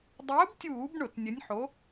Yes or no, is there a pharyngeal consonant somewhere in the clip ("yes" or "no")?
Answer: yes